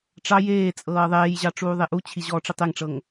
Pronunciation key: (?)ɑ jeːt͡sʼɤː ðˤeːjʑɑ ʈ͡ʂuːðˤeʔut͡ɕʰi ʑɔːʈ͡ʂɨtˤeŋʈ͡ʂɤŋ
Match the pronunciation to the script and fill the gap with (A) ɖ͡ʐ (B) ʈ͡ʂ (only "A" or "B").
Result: B